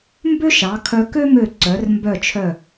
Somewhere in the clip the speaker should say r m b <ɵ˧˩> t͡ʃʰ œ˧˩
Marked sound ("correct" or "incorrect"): incorrect